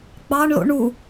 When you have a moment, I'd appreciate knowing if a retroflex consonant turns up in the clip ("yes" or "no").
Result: yes